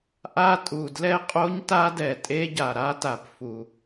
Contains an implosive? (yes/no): no